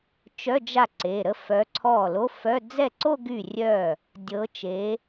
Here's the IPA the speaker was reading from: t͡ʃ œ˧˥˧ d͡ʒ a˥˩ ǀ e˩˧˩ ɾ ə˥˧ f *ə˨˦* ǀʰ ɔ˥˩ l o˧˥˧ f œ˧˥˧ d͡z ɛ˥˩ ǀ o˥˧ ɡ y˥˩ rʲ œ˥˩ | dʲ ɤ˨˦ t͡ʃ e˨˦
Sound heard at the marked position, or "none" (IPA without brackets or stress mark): œ˨˦